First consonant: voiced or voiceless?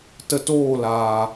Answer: voiceless